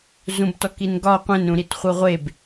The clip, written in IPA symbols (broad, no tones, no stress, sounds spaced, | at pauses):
z ũ b t ɔ k i n ɡ ɒ qʷ ẽ n ɾ ũ ɾ i t χʷ ɯ ʁʷ e b